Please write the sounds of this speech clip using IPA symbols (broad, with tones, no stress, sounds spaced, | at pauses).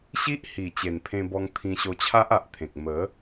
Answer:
ɕ i˦ ʔ h i˨˩ t͡ɕ e˨˩ n pʰ ẽ˧ b ɔ˧ ŋ t̪ʰ ĩ˧ ɕ o˧ t͡ɕʰ a˦ ʔ a˨ ʔ t̪ʰ ẽ˨ k̚ m ə˨˦